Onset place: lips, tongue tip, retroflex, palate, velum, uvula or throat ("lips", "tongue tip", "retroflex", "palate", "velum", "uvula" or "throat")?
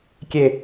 velum